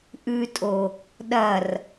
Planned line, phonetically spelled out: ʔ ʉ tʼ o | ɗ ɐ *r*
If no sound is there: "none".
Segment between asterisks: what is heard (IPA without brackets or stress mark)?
r